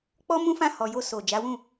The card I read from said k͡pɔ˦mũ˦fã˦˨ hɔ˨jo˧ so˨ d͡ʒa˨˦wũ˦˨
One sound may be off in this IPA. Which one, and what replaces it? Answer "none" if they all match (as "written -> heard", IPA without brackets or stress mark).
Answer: none